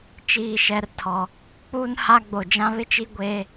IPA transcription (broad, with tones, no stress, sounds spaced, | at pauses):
t͡ʃ iː˨ ʃ ɛ˨ r tʰ ɔ˨ | k͡p uː˦ n h a˦ ɡ͡b o˨ d͡ʒ ã˦ β ɪ˦ t͡ʃ i˦ ɡʷ eː˦